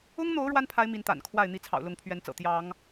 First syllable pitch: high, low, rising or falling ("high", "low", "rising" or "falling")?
high